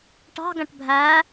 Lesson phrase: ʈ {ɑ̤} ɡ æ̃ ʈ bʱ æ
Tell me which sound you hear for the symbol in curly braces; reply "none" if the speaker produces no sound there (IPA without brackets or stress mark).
ɑ̤